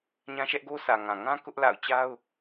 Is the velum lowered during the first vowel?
yes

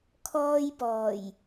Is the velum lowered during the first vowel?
no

